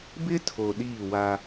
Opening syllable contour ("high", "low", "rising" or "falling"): high